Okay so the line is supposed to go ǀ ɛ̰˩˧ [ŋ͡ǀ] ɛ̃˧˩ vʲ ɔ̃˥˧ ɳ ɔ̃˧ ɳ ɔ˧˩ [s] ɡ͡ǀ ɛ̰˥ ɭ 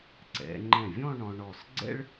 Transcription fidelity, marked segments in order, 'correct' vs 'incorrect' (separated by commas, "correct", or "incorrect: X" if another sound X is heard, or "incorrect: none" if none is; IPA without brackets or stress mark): incorrect: ŋ͡ǃ, correct